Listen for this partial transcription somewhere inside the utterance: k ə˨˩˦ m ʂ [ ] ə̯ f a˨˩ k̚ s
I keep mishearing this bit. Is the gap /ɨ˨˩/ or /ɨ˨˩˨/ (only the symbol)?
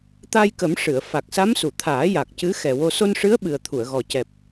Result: ɨ˨˩˨